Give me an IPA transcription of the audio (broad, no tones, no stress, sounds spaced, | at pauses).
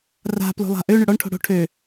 r a̤ p l o̤ lˠ a̤ ʔ ø ɳ ʏ ɽ ɔ ɳ ʈʰ o̤ ɽ o̤ ʈʰ ø